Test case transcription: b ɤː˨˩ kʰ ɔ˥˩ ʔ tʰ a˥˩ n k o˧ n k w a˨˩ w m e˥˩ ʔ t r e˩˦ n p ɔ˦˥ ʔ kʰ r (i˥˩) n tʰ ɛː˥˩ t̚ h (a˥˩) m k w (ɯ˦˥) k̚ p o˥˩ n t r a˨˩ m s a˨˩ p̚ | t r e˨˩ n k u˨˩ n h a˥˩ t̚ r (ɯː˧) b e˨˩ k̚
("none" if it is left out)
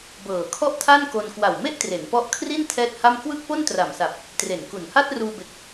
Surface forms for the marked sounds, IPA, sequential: i˥˩, a˥˩, ɯ˥˩, uː˧

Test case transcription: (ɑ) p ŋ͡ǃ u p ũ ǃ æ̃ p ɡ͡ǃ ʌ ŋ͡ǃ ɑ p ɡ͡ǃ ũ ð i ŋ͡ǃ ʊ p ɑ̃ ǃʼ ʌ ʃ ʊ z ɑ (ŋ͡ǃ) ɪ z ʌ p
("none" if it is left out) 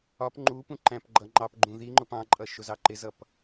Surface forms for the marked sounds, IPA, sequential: ɒ, ǃ

